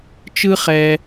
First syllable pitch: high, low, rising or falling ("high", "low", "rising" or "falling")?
high